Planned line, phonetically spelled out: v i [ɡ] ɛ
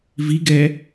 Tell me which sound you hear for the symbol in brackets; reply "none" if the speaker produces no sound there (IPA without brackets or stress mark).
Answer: ɡ